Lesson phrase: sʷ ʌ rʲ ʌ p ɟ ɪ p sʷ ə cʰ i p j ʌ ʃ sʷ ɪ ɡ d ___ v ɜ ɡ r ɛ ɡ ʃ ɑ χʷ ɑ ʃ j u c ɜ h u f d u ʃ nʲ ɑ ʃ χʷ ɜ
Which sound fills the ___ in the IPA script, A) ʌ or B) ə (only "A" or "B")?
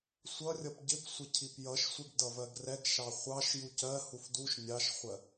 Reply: A